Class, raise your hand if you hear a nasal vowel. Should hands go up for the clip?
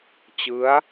no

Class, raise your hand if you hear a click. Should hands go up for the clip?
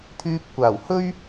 no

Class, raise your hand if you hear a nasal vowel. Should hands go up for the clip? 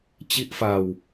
no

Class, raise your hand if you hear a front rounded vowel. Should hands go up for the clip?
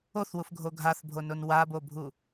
no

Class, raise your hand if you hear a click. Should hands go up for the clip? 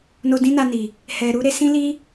no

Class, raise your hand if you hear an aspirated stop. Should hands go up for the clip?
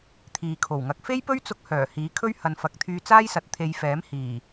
yes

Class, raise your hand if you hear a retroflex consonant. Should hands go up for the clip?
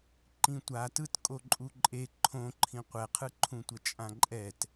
no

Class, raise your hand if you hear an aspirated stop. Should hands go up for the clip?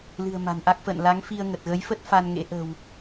no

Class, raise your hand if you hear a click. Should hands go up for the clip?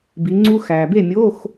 yes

